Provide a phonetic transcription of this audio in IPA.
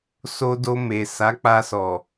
s o˧ d o˧ m e˨ s a˨˦ k͡p a˧ s ɔ˨

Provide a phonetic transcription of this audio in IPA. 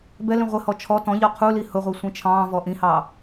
b ɛ l ĩ ʁʷ ɪ h ɔ t͡ʃʰ ɔ t ɔ̃ ʎ ɒ qʰ u l i h ʊ ʁʷ i sʷ ĩ t͡ʃʰ ɑ̃ː v ɔ ʔ ĩ h ɑː

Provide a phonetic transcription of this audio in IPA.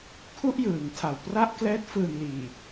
kʰ u˥˩ ʔ j ɯː˩˦ ŋ tʰ a˨˩ w p r a˥˩ ʔ k l ɛː˦˥ t̚ f ɯː˨˩ n l iː˨˩

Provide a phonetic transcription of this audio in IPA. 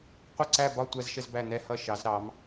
qʷ ə˦˨ ǀ æ˦˨ b ɒ˦˨ tʷ æ˦ z ʃ ə˦ z b æ˦˨ n̪ ɛ˦ h ʌ˦ ʃ ɑ˩˧ z ɾ ɑ˩˧ m

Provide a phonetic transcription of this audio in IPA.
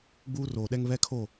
ɡ͡b uː˦ r oː˨ ɗ ɛ˦ ŋ β ɛ˦ kʰ o˦˨

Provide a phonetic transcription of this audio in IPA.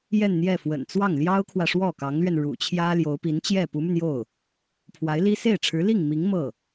j ɛ˥˧ n n̪ j ɛ˥˩ f w ə̰˨˩ n t͡s w ɑ˥˩ ŋ l j ɑ˥ ʊ̯ kʰ w ä˨ ʂ w ɔ˥˩ k ɑ˧˥ ŋ l ɥ ɛ˧ n ɻ ṵ˨˩ t͡ɕʰ j ä˥ l j o˧˥ ʊ̯ p i˧˥ n t͡ɕ j ɛ˥˩ p u˧˥ m y˧ n j o˥˩ ʊ̯ | pʰ w a˧˥ ɪ̯ l i˥ s e˥˩ ɪ̯ ʈ͡ʂʰ ɻ̩˧˥ l i˥˩ ŋ m i˧˥ ŋ m ɤ˥˩

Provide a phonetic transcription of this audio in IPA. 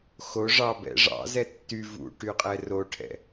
x o ʐ ɑ b ɛ̰ ʐ ɑ̰ z ɛ tː y v ṵ ʈ y qʼ ɛ r o ʈʰ ɛ̰

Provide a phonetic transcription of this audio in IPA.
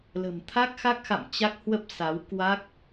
l ə̤˨˩ m t̪ʰ a˦˥ k̚ x a˦˥ k̚ x a̰˧˨ m t͡ɕ a˦˥ k̚ h w ə˦˥ p̚ s a˨˦ w k w a˦˥ k̚

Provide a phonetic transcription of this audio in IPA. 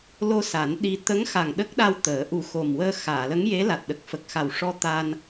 l o˧ s a˨˩˦ n ɗ i˧ t̪ ə˧˥ ŋ x a˨˩ ŋ ɗ ə˦˥ k̚ ɗ a˧ w t̪ əː˨˩˦ ʔ u˨˩˦ x o˨˩ m w əː˧ x aː˨˩˨ l ə˧˥ ŋ j e˧˥ l a˨˩ t̚ ɗ ə˨˩ k̚ f ə˨˩ k̚ x a˨˩ w ʂ ɔ˧ t̪ a˧ n

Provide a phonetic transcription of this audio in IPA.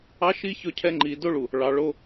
ɑ˦ ʃ i˦ ç ɵ˦ cʰ ɛ˦ ŋ͡ǃ i˨ d o˦ ɭ u˨ | ɭ ɑ˨ ɭ o˦

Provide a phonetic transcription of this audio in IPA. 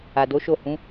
a˨ d o˨˦ ʃ o˦˨ h ũ˨˦

